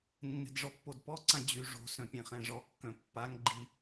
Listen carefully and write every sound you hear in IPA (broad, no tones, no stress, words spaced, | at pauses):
nːɛ̤dʐɔpːodpɔ ǀãd͡ʑy ʐo̤ sœ̃pʲɛ̃χɛ̃ʐɔ kːœ̃pːaŋ ɡ͡ǃi